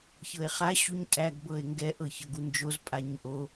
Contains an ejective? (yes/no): yes